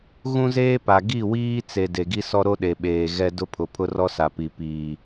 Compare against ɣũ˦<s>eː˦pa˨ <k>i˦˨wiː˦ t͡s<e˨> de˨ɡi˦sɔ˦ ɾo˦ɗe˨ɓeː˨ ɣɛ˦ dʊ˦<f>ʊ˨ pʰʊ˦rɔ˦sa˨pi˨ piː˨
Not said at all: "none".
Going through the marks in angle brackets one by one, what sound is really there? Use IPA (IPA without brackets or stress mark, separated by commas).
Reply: z, ɡ, e˨, pʰ